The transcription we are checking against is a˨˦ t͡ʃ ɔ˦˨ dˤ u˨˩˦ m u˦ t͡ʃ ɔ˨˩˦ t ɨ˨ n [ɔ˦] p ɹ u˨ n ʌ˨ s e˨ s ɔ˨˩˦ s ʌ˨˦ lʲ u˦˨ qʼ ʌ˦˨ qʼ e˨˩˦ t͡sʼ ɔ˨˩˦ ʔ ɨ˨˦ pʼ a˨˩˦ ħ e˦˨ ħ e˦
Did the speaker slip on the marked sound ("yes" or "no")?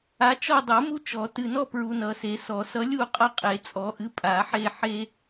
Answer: no